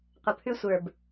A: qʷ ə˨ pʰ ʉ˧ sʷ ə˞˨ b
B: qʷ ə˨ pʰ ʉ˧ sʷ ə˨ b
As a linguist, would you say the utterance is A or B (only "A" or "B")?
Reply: A